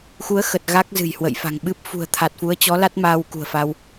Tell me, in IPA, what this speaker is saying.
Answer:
x u˨˦ ə̯ x ə˨˩ t̚ ɣ a˦˥ k̚ z ɨ̤˨˩ j h w ə̰˧˨ j f a̤˨˩ ŋ ɓ ɨ˦˥ p̚ f ṳ˨˩ ə̯ t̪ʰ a˨˩ t̚ f u˨˦ ə̯ t͡ɕ ɔ˨˦ l a˦˥ t̚ m aː˧ w k ṳ˨˩ ə̯ f a˧ w

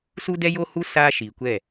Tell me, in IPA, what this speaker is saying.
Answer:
s u˦ d ɛ˦ j o˦ h u˦ s aː˦ ʃ iː˨ kʷ ɛ˦˨

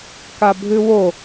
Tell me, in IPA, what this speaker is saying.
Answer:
k a bʱ ʉ w o

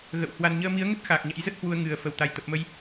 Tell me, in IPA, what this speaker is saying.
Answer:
ɣ ə̰˧˨ w h w a˧ n ɲ əː˧ m i˨˦ ə̯ ŋ ə˦˥ t̚ x aː˨˩ k̚ ɲ a̰˧˥ j z ə˦˥ t̚ h w u˧ ə̯ ŋ ɨ˨˩ ə̯ f ə˧˩ w t̪ a˨˩ j t̪ ə˨˩ p̚ m ə˧ j

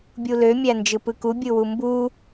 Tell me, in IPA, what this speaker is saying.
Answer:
bʲ u l ø mʲ æ n d͡ʒ ɯ p ɯ k u bʲ ɯ w u m b u

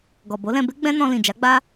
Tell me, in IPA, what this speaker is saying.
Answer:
ɡ ɔ˨ b o˨˦ l ɛ̃˧ b e˦ ɡ͡b ɛ̃˦ n ɔ̃˧ l ĩ˨ d͡ʒ a˨˦ ɡ͡b a˦

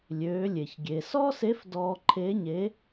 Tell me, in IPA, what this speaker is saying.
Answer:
lʲ øː˩˧ lʲ e˩ ç ɡʲ eː˩ s ɔː˥ s e˧˥ f d ɔː˧ ǃʰ e˧˥ ɲ e˧˥

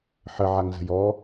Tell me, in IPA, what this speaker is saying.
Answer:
ħ ə ʕ a ŋ z ə̤ j ɔ

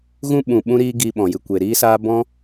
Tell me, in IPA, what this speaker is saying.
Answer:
ɣ ũ˦ ɓ ũ˨ ɓ ũ˦ ɾ iː˦ ɡ i˧ ɓ ɔ̃˨ j ɨ˧ kʷ e˨ ɾ iː˦ s aː˦ b ɔ̃˦

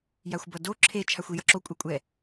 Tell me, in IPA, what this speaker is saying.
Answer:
j a xʷ b ʌ d o ǁʰ e t͡ʃʰ a xʷ i j ʌ ǁ o kʷʼ ɛ kʷʼ ɛ

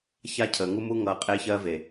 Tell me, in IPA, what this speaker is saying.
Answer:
ç a˦ cʰ əː˨ ŋ u˦ m u˦ ŋ ʌː˨ qʼ e˦ ç ɜ˦ v e˨

